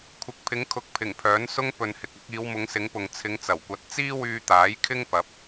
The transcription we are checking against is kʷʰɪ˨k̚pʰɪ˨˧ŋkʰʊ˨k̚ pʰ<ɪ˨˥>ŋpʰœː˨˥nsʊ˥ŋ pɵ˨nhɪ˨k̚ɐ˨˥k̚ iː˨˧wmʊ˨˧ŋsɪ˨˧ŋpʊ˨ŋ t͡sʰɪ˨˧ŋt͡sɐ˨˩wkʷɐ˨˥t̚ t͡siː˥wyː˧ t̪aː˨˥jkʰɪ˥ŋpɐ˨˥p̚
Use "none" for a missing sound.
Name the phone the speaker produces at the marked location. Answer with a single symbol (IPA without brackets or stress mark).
ɪ˨˩